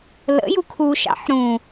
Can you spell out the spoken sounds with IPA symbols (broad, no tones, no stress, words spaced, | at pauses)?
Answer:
lə̰ jukʰuʃɑ̰ħ ɾũ